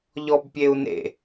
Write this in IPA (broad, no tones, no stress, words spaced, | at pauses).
ʎɔbpʲeu̯nḛ